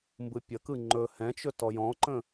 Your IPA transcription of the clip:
mbɯpʲəkɯ ŋ͡ǃɵ hɛ̃t͡ʃɵ tɔjɔ̃ǃə̃

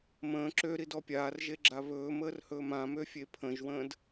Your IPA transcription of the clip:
mə̃ː ǁøɾidɔ pʲaːrʒeɡ͡ǁa βɵːməːrhɵːm ãmøfʲe pʰə̃ʒwə̃ːd

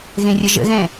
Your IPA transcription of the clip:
ɣẽrʲəʒə̰ɣɛ̃

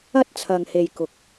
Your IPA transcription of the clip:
ɐ˥t̚ t͡sʰɐ˨ŋhe˨j kʊ˨k̚

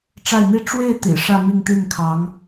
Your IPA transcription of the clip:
ʈ͡ʂa˥˩ɪ̯n̪i˥ ʈ͡ʂwe˥˩ɪ̯ t̪ḭ˨˩ ʂä˥˧mi˥˧ŋt̪i˥˩nkʰɑ˧˥ŋ

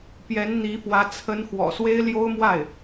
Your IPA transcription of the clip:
pjɛ˧˥nn̪i˧˥fwä˧˥ t͡sʰə˧˥n xwɔ̰˨˩swe˥ɪ̯ ljo˥ʊ̯mwa˥˩ɪ̯

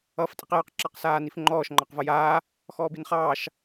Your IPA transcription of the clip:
ʌːftʼiqjɑq ǁɑqsaːnifŋ͡ǃɔːʃ ŋ͡ǃɑqvʌjaː | xɔːbinχɑːʃ

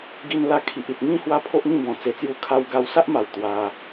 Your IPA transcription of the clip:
ɡi˧n la˧kʰi˨ʔi˨t̚ ŋĩ˥˧ hwa˦pʰo˦ʔŋĩ˥˧ bɔ̃˨˩t͡se˧t͡sju˦ kʰa˧wɡa˧wsa˦ʔma˨˩w t̪wa˧

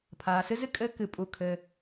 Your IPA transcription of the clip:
pʰaː˩sɨ˥z ɨ˥kʼɘː˧ kɨ˩pʼu˩kʰɘː˩

